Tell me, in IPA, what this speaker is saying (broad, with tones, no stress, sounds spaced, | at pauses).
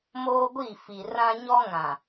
m oː˦ ɡʷ i˦˨ f i˨ r ã˦ ɲ ɔ˦ ŋ ã˨